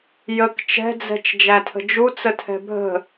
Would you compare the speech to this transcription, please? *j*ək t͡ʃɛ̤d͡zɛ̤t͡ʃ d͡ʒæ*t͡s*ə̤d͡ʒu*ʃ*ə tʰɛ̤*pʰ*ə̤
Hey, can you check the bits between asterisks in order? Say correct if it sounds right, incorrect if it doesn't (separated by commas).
correct, incorrect, incorrect, incorrect